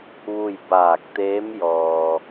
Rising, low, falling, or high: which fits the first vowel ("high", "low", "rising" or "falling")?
falling